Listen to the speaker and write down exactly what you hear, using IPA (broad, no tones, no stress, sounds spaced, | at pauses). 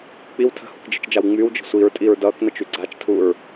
k͡p i w tʰ ə̤ h u k d͡ʒ i̤ t͡ʃ d͡ʒ a w ŋ͡m y w d͡ʒ ə̤ sʷ i ɹ tʼ i ɹ d ʌː k n ʌ t͡ʃ y ɡ͡ǀ a t͡ʃ tʰ uː ɹ